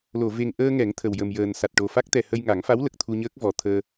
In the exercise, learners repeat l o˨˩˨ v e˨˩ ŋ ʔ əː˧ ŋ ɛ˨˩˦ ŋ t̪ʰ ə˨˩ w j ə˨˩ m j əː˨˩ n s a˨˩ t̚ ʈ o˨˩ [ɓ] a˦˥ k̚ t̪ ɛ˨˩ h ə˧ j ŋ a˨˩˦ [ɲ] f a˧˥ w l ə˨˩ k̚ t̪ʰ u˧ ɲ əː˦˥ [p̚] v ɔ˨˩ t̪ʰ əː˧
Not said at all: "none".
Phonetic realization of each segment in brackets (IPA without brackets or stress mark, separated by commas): f, ŋ, k̚